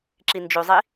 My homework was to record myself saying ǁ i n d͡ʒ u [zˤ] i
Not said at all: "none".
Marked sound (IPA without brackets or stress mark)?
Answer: zˤ